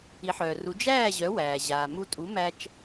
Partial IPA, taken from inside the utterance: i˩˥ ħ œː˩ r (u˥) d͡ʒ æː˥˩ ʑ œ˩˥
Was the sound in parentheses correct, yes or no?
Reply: no